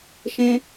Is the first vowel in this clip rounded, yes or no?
no